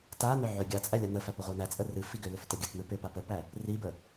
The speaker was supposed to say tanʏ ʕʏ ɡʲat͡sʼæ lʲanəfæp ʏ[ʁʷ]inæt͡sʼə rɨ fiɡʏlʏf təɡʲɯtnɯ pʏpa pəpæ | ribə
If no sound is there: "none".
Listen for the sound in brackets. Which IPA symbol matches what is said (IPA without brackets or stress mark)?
ʁʷ